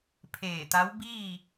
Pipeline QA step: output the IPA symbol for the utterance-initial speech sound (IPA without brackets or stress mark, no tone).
pʰ